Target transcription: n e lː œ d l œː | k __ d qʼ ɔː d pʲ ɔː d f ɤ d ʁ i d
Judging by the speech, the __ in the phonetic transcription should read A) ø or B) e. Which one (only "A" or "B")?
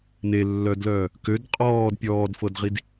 A